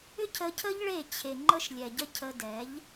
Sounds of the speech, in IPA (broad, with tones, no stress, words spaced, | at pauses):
ʏ˦ cʰə˧cʰə˦ʎɭe˦˨t͡ɕʰe˨ ŋ͡ǃə˦ʃlʲɛ˨ɟə˦ cʰə˧dɛ˨˦ʎ